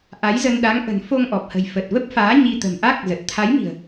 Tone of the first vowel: rising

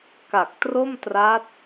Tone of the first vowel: low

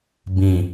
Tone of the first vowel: low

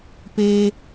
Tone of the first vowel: high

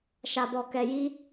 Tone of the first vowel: low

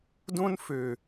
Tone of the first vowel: high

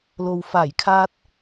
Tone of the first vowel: low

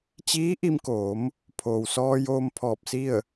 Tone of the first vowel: rising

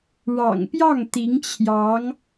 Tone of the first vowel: low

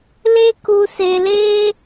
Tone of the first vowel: high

